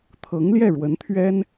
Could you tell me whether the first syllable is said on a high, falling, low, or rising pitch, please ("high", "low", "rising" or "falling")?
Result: rising